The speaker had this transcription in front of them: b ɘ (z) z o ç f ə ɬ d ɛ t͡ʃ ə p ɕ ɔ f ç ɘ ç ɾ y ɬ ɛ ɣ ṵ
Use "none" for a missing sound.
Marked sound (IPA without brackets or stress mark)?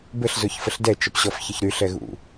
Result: ɬ